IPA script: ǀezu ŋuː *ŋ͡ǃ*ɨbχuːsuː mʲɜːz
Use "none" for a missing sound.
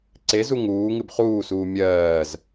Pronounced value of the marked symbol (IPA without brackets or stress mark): ŋ